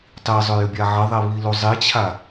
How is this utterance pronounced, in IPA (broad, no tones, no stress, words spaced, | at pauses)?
tˤizˤʏ jʏbʲaʕəðˤe βiluzˤit͡ɕʰa